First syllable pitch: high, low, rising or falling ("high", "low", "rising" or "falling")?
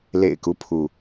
low